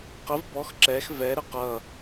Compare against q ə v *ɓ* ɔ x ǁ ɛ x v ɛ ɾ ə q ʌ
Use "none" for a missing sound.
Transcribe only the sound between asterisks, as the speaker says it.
b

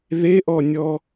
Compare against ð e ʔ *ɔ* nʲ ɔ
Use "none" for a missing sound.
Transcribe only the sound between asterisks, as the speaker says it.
ɔ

